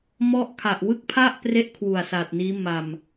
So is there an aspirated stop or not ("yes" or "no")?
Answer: yes